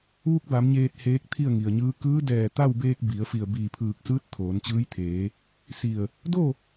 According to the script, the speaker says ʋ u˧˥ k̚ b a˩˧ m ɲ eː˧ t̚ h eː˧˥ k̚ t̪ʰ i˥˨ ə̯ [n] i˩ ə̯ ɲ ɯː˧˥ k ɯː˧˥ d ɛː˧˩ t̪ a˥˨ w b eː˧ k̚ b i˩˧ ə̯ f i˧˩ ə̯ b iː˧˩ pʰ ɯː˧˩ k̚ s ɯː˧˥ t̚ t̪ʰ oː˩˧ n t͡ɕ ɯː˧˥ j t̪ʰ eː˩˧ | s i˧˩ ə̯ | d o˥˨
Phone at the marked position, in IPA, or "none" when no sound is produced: ŋ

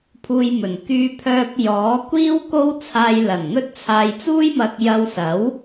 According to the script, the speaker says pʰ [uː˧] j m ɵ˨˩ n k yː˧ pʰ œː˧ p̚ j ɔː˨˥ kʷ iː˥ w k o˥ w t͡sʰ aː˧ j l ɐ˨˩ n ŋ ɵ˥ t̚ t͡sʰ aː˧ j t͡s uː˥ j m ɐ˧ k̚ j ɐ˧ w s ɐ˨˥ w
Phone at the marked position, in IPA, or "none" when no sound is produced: uː˧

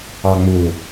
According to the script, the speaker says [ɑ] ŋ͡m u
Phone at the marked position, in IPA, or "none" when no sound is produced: ɑ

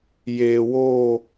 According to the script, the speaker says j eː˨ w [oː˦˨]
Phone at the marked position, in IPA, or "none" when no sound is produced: oː˦˨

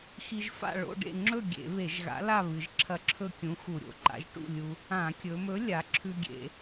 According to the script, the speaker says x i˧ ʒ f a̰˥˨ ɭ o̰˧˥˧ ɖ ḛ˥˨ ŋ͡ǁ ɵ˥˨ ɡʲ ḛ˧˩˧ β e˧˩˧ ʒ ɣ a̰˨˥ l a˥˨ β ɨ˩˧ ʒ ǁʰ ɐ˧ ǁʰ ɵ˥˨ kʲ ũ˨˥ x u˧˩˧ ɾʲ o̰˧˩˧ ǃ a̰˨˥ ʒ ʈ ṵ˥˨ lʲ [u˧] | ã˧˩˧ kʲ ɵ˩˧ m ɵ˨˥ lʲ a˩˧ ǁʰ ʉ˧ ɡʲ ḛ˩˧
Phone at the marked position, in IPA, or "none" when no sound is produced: u˧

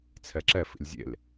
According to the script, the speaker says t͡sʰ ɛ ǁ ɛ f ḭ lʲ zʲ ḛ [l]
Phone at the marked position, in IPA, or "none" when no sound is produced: l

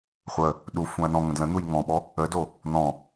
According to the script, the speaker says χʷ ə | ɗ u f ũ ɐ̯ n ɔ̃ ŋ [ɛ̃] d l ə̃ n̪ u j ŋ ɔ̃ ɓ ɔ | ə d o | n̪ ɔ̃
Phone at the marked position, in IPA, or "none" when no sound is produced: ə̃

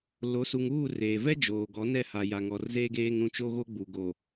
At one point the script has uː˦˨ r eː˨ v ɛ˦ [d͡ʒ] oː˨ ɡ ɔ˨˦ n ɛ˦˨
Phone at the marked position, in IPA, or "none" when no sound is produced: d͡ʒ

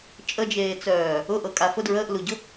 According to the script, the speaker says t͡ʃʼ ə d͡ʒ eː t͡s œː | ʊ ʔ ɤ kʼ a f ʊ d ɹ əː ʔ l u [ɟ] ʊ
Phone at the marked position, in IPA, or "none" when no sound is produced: ɟ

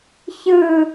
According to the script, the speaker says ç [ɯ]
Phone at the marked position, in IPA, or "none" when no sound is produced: ɯ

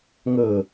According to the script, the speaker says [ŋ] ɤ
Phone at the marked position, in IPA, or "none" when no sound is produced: ŋ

